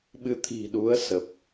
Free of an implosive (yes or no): no